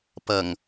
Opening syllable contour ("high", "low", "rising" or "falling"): low